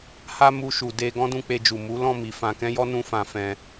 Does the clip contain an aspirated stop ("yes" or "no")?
no